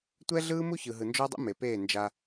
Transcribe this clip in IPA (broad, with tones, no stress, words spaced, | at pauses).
tʷɛ˦ɮɯː˦ mu˦çɯ˨ɦɯ˨ nd͡ʒɔ˦dˤṵ˦me˨peː˦˨ nd͡ʒa˧